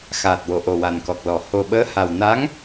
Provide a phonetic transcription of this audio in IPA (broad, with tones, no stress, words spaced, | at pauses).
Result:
xaː˨˩t̚wo˨˩˨ ʔo˨˩wa˨˩nkɔ˨˩k̚lɔ˨˩˦ ho˨˩ ɓəː˧˥ha˨˩w na˧˥ŋ